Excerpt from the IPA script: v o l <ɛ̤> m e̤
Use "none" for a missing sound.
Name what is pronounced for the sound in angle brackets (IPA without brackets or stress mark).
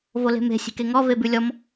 e̤